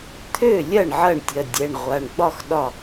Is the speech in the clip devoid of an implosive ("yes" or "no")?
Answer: no